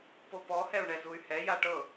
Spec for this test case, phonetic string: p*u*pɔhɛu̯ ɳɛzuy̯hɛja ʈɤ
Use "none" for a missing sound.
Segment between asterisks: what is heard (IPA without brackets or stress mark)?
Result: o